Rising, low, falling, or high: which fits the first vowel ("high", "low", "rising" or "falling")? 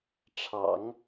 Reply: low